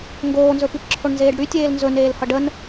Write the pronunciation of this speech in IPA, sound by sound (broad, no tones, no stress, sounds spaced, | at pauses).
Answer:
ŋ ɡ oː n z ɵ p i p ǁʰ o ɳ n z eː ɖ ɽ y tʲ eː l n z ɵ n eː l h ʌ ɖ ə n